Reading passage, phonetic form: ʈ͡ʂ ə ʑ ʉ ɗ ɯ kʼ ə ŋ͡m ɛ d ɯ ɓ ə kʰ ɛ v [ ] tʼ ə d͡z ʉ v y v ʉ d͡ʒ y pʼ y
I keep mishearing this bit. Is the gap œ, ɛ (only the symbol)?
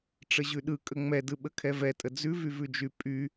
ɛ